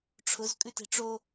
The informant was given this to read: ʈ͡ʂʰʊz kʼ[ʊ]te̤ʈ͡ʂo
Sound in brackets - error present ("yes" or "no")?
yes